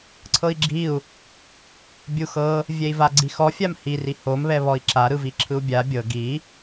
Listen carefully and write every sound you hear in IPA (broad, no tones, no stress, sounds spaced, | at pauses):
ǀʰ ɤ i̯ ɡ͡ǁ i u̯ | bʲ u x ɤ | vʲ ɛ i̯ v a ɡ͡ǀ i x ɔ fʲ a m h i r i h o m β ɛ β ɔ i̯ ǁ a ɾ ɯ v i ǁʰ ɯ u̯ bʲ a bʲ ɤ ɡ i